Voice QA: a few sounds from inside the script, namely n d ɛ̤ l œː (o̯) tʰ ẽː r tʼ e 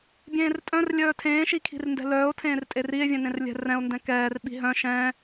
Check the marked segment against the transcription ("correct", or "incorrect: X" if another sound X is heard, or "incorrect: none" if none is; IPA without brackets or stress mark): correct